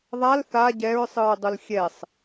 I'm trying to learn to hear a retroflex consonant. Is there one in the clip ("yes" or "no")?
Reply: no